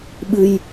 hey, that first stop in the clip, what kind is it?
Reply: implosive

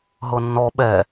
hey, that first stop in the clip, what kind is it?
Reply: implosive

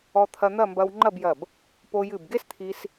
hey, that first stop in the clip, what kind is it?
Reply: aspirated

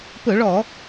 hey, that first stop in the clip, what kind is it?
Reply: plain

